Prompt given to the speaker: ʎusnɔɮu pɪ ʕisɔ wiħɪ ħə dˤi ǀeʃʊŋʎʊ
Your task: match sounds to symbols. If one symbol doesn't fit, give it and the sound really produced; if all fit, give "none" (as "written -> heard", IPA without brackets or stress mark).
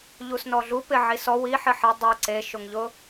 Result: ə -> ɪ